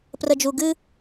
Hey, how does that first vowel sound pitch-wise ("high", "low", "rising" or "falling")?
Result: low